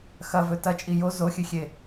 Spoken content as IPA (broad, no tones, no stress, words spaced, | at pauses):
xɐvɵ tɐt͡ʃʼi jo zoxʲɨxʲe